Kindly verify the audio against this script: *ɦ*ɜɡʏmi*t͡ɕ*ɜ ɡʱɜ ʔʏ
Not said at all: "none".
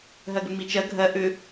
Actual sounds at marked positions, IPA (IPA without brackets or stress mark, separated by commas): ɦ, t͡ʃ